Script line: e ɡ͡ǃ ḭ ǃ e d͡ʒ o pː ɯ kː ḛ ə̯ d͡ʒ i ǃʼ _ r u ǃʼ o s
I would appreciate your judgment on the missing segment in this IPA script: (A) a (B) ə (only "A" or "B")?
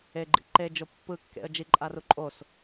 A